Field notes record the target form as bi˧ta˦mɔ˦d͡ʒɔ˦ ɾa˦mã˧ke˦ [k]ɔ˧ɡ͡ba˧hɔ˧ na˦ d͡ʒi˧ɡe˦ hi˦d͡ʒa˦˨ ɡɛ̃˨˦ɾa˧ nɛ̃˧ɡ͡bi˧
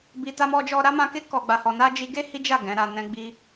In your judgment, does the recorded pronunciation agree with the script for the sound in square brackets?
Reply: yes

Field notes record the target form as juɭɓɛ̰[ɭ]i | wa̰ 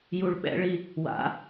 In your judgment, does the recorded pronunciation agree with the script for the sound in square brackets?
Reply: yes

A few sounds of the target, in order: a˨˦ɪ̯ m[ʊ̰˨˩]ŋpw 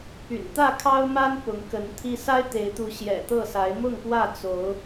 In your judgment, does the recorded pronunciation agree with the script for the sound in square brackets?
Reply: no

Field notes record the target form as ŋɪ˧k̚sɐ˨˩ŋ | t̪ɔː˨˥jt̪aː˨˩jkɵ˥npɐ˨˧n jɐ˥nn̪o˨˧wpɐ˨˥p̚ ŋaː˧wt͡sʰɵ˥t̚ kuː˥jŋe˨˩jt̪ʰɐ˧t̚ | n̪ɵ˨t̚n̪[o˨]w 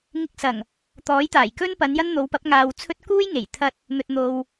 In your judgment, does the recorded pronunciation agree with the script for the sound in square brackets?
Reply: yes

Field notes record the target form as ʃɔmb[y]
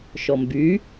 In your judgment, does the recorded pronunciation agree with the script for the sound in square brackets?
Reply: yes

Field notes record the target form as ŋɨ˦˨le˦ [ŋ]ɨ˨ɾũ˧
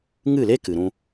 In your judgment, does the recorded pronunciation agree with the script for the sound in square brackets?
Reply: no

